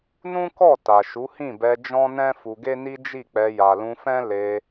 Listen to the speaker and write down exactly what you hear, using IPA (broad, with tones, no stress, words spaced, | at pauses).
nũ˦kɔ˦˨ ta˨ʃu˨˦hĩ˦˨bɛ˧ d͡ʒɔ̃˦nɛ̃˦ fu˧ɡe˦ni˦ d͡ʒi˦˨k͡pɛ˧ ja˨lũ˧fɛ̃˦ le˧